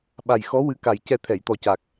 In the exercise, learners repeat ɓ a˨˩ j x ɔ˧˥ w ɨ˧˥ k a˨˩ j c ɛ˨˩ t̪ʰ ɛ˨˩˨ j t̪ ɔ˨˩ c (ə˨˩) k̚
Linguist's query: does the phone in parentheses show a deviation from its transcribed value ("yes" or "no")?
yes